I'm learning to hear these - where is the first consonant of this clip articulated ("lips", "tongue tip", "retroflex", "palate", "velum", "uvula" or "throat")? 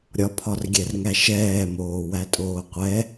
tongue tip